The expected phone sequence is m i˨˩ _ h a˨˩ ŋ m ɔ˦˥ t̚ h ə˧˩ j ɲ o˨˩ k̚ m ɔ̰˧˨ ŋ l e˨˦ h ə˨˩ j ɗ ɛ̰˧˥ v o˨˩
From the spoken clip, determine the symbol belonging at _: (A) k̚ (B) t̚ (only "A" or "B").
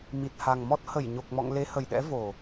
B